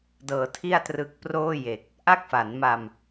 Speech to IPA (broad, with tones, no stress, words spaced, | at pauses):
dɤː˧tʰi˥˩a̯trɯ˦˥k̚ proː˥˩ je˨˩k̚ | ʔa˥˩k̚fa˩˦nma˧m